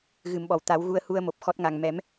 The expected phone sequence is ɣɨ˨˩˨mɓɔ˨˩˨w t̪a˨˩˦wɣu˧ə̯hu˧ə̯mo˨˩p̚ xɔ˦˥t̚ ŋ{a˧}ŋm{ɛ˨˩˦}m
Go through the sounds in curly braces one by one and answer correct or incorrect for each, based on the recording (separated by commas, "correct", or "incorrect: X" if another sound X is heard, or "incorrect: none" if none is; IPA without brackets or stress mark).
incorrect: a˨˩, correct